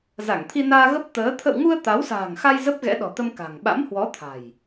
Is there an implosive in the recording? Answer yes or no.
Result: yes